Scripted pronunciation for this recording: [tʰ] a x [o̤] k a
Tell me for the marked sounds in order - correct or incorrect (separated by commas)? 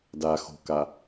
incorrect, correct